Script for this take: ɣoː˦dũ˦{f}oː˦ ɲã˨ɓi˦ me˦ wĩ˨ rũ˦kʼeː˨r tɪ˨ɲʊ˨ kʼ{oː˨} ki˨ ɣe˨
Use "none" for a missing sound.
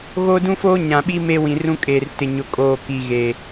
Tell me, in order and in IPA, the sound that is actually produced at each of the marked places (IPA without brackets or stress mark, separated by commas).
f, oː˨